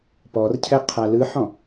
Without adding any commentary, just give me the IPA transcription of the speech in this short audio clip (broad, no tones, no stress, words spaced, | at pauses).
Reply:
pɔrcʰɛ qʰalɯħɔ̃